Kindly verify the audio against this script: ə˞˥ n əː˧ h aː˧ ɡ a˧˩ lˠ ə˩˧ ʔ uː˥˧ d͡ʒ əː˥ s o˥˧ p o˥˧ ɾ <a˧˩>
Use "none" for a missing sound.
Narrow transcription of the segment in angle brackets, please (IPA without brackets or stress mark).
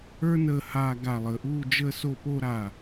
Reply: a˧˩